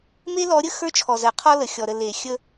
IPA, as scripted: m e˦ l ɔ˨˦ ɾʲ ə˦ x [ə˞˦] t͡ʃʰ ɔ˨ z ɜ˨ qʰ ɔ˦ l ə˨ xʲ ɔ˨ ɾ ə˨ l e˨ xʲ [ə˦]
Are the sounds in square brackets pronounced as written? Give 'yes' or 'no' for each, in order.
yes, yes

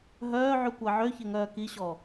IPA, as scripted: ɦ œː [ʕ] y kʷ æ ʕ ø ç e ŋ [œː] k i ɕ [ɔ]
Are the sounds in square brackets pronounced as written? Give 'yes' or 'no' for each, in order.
yes, yes, yes

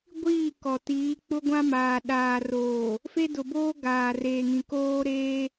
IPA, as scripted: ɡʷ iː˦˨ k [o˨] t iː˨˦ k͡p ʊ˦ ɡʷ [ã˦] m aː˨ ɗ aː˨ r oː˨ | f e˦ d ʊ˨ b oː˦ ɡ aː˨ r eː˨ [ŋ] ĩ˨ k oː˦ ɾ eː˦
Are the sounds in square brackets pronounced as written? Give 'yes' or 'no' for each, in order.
no, yes, yes

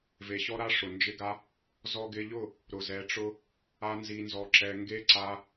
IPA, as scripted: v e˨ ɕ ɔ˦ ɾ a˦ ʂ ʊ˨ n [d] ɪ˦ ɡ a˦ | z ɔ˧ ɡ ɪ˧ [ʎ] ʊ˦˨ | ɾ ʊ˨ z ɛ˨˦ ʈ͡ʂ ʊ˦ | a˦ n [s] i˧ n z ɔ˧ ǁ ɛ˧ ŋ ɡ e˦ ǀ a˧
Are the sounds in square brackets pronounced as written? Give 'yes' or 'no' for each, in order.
no, yes, no

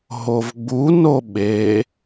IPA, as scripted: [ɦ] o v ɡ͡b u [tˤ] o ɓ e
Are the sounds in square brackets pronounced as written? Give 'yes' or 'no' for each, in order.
yes, no

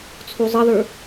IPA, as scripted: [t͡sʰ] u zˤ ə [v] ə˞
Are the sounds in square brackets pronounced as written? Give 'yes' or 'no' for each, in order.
yes, no

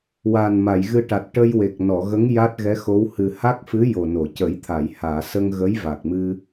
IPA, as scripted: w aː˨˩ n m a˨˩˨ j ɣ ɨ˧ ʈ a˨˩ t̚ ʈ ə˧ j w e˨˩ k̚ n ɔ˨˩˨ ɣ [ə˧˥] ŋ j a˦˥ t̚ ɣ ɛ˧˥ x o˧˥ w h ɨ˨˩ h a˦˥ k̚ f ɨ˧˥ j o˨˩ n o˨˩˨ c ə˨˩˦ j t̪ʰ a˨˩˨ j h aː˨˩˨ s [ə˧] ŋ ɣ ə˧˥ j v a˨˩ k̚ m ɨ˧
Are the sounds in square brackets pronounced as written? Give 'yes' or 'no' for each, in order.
yes, yes

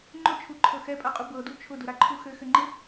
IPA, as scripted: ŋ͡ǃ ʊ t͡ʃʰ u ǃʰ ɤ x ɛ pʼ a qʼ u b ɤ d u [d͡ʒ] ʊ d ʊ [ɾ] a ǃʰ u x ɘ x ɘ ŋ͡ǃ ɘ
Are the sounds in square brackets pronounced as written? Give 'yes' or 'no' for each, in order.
no, yes

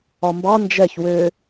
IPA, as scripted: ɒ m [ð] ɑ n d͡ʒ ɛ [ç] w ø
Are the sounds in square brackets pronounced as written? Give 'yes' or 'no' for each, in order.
no, yes

